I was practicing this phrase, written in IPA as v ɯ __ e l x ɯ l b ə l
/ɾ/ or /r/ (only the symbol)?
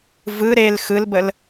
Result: ɾ